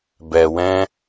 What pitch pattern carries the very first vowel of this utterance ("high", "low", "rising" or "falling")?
low